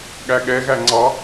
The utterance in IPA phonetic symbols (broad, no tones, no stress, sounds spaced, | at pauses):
ɠ æ ɠ ɛ ɣ æ ŋ͡ǀ ɑ